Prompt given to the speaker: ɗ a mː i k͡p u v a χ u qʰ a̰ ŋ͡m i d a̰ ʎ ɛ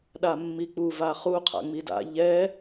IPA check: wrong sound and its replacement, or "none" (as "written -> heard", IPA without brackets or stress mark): none